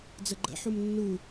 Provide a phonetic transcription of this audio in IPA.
d͡zəɡ͡ǃə̰ ħumnːu

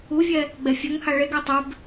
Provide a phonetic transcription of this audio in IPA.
uvʲɛ | ɡ͡bɛfʲɘŋha ɭeɡɛ tˤʏb

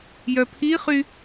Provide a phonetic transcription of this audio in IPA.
jœpʰiχy

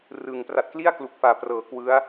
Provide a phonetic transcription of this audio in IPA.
rɯ˨˩ŋ pra˨˩t̚kli˥˩a̯klu˨˩k̚faː˨˩ prɤː˨˩kwɯ˦˥a̯

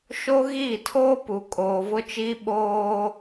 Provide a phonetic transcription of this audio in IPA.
ʃo˦ ɣiː˦˨tʰoː˦pu˨ kʼoː˨vʊ˦t͡ʃiː˦ ɓoː˦

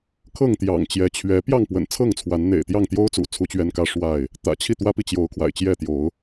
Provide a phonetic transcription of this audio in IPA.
kʰɤ˥˨ŋt̪jɑ̰˨˩ŋt͡ɕjɛ˨˦ t͡ɕʰɥɛ˨˦ pjɑ˥˨ŋpwə̰˨˩nt͡sʰɤ˥˨ŋt͡sʰwa˨˦n n̪ḛ˨˩ɪ̯t̪jɑ˥˨ŋt̪jo˦ʊ̯t͡sṵ˨˩ t͡sʰu˦t͡ɕɥɛ˦n kä˦ ʂwa˥˨ɪ̯ | t̪ä̰˨˩t͡ɕʰi˥˨t̪wä˦pi˨ t͡ɕjo˨˦ʊ̯kʰwa̰˨˩ɪ̯t͡ɕjɛ˥˨t̪jo˨˦ʊ̯

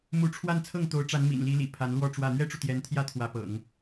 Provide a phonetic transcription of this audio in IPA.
mu˧˥ʈ͡ʂʰwa˥˧n t͡sʰɤ˥˩ŋt̪o˧˥ʊ̯ʈ͡ʂa˧˥n mḭ˨˩nli˧˥lḭ˨˩ pʰa˧˥nlwɔ˥˧ʈ͡ʂwä˥˩ n̪ɥɛ˥ʈ͡ʂu˨ t̪jɛ˧˥nt̪ʰjä˥ t̪ʰwä˧˥pɤ̰˨˩˦ŋ

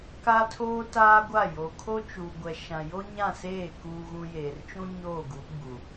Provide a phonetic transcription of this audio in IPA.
kaː˦tʰoː˦ taː˦ɡʷa˦˨ jo˨kʰo˦t͡ʃuː˨ɡʷɛ˨ ʃã˨jo˦ɲã˦˨ seː˦˨ kuː˨ɣũ˨ jeː˨rt͡ʃũ˦ɲoː˦˨ɡu˨˦ ɡ͡bu˨

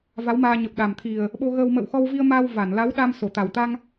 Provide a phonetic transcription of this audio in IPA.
va˨˦wmaː˧ ɲə˨˩p̚ɗa˨˩mt̪ʰi˨˩ə̯ | ɓo˧ɣəː˧w mə̰ː˧˨wxɔ˧wvi˧ə̯maː˧w va˧˩n la˨˦wɗa˧m so˧˩t̪a˨˩wt̪a˧ŋ

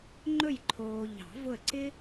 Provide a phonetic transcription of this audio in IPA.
ŋ͡ǃɵ˦˨jǃʰoː˨ ʎɑ̤˨˩˦vʊ˦˨ə̯ǀɪ˥

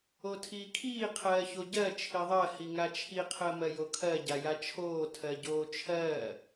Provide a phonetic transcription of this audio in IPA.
otʰiːkʰiː qʰɜːçoɟɜ t͡ʃʰiðˤɜ hiŋat͡ʃʰi qʰɜmɜjokʰɜ ɟajat͡ʃʰoː tʰɜɟoːt͡ʃʰɜː

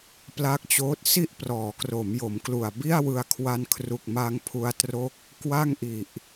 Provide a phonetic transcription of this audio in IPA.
pla˦˥k̚t͡ɕoː˦˥t̚ si˥˩ʔprɔː˩˦kro˩˦m jo˩˦mklu˨˩a̯ bi˥˩a̯wɯ˧a̯kʰwa˧nkʰru˨˩k̚ ma˧ŋpʰu˧a̯tro˦˥k̚ | kwa˥˩ŋʔi˨˩ʔ

